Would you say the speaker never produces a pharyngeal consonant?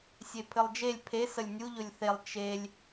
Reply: yes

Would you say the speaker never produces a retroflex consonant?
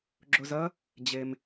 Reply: yes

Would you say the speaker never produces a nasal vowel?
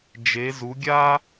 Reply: yes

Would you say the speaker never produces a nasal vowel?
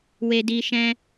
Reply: no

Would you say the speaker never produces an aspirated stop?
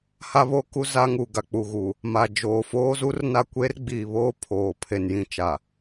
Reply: no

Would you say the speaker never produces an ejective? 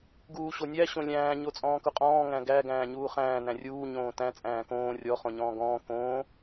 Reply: no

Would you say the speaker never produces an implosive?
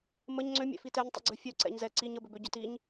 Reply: yes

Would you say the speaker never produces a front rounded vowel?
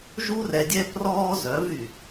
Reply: no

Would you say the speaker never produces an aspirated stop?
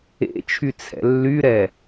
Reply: no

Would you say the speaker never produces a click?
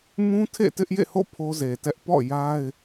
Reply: yes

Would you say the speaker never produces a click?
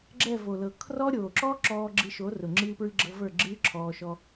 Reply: no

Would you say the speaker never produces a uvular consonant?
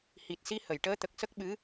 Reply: yes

